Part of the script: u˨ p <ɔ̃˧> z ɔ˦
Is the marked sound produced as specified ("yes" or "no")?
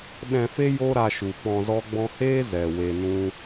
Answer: yes